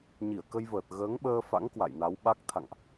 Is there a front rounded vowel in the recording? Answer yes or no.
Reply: no